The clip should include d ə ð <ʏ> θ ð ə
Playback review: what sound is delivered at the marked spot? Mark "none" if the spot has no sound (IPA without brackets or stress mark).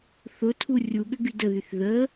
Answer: y